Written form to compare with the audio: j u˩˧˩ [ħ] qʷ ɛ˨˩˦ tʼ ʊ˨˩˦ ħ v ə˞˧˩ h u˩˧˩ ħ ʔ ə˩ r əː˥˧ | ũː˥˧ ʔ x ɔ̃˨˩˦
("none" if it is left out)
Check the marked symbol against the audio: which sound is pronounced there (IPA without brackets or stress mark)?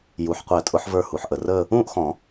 ħ